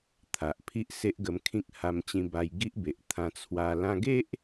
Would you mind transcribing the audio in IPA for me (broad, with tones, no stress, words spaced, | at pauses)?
t̪ʰa˨ʔ pʰi˦ʔse˦ʔɡə˧mkʰĩ˦k̚ ha˧mt͡ɕĩ˧ba˧j ɡi˦ʔbe˨ʔ t̪ʰã˧t͡sʰwa˧ lã˧ɡe˦ʔ